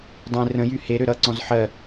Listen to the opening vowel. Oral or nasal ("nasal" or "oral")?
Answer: nasal